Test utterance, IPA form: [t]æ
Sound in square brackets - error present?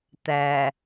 no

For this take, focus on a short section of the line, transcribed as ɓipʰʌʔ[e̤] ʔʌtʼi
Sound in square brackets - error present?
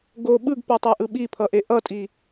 yes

